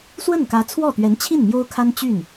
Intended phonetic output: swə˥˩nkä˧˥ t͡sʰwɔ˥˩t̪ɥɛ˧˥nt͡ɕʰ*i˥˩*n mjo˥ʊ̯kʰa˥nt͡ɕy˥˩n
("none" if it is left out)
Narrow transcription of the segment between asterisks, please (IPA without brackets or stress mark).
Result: i˥˩